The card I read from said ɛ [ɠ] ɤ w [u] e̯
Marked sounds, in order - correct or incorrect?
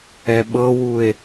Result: incorrect, correct

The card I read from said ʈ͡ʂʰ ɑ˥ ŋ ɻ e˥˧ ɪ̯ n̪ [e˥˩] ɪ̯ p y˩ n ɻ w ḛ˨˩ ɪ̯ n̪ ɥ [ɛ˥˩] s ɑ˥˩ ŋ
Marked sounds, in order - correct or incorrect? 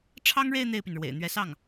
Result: correct, incorrect

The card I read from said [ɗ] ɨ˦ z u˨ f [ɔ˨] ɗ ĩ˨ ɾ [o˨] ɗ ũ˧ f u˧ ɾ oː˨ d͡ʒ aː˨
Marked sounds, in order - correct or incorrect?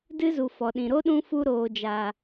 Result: incorrect, correct, incorrect

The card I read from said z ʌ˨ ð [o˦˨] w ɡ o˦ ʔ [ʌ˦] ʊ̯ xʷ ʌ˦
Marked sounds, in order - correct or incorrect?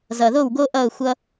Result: correct, incorrect

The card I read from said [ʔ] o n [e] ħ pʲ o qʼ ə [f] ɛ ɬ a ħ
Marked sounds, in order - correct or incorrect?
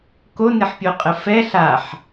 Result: incorrect, correct, correct

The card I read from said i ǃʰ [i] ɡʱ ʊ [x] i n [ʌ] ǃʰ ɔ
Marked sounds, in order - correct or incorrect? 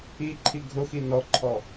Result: correct, correct, incorrect

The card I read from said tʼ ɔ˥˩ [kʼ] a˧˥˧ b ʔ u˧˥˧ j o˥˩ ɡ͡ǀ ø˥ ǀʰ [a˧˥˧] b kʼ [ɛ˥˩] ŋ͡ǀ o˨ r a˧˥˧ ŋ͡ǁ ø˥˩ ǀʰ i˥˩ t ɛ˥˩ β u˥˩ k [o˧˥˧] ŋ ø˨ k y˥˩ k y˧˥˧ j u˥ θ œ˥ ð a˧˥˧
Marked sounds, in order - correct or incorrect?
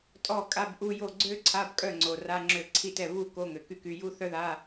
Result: correct, correct, incorrect, correct

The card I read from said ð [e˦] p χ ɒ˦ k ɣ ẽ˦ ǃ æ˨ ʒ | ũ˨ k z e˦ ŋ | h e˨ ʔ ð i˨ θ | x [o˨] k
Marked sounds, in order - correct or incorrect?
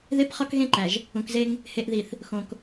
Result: correct, incorrect

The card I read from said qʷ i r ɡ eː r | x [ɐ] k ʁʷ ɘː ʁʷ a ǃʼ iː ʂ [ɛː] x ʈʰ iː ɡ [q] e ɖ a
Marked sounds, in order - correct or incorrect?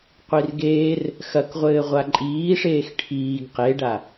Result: correct, incorrect, correct

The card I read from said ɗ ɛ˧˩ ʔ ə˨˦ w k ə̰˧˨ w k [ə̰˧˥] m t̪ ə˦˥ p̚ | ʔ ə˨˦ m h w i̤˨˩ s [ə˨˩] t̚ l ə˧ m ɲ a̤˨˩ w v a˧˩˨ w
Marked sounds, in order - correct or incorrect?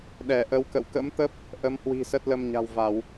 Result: correct, incorrect

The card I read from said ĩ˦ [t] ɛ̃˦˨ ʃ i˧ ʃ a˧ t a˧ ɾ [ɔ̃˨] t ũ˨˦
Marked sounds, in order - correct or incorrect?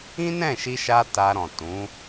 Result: incorrect, correct

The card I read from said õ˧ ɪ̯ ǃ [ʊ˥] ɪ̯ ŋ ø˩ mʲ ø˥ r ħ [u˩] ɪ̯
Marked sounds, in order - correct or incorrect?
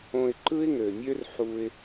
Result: incorrect, incorrect

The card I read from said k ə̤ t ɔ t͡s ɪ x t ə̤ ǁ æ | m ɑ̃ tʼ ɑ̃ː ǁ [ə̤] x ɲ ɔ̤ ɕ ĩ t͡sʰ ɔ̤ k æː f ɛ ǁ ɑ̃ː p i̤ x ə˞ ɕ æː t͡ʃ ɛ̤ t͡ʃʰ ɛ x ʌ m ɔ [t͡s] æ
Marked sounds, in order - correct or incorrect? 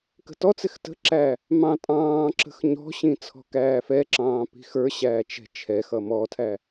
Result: correct, incorrect

